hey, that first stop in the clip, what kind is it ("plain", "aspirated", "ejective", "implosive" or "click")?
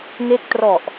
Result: plain